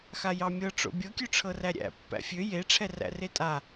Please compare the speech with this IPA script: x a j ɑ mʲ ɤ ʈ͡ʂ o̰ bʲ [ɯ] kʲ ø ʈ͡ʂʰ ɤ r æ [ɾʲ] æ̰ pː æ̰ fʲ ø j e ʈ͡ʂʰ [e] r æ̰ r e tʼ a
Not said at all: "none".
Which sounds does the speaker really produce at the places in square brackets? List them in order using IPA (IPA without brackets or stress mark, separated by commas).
ɤ, ɾʲ, ɛ